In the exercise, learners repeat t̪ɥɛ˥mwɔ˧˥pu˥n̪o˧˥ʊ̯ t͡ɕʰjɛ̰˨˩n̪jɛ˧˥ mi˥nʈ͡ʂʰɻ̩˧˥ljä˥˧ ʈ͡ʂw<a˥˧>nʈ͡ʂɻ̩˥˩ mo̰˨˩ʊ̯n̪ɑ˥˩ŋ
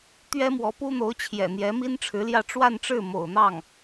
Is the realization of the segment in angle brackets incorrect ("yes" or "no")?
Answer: no